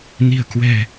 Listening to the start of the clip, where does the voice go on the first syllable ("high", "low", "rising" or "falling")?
low